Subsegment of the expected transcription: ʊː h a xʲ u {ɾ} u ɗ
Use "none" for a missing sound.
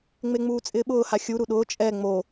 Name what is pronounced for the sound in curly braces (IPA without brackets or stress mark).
ɾ